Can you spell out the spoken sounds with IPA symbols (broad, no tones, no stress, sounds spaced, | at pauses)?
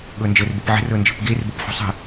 ɠ ɤ n d͡ʒ ə r b ə p ʕ ə̤ r ɤ n d͡ʒ ə̤ p ɡ e r b ɤ p ħ ṳ sˤ ə̤